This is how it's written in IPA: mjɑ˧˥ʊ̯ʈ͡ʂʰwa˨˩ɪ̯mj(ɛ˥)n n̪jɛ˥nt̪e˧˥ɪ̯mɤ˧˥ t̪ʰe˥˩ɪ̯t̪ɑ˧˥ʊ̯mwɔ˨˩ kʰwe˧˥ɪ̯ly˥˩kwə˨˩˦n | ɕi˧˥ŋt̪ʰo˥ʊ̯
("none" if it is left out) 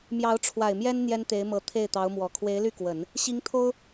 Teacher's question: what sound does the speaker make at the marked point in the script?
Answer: ɛ˥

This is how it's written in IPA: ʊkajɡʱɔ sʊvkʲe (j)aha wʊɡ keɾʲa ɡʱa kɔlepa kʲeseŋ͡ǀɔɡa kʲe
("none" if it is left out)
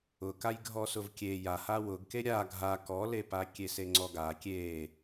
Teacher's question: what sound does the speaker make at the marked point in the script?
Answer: j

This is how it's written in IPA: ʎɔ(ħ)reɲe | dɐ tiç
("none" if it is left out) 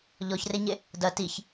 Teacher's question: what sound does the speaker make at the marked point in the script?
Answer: ç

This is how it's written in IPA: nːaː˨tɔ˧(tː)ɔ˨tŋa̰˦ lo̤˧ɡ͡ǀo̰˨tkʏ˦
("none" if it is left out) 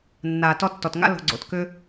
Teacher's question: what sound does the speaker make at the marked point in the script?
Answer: tː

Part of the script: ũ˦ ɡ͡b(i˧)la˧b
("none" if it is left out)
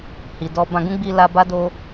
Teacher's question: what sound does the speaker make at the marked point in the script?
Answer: i˧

